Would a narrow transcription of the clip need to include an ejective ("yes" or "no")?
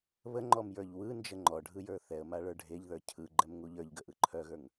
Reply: no